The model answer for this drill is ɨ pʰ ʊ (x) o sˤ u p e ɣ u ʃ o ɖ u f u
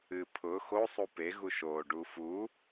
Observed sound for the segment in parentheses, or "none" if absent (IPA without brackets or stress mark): x